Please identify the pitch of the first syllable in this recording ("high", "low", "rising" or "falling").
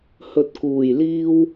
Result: low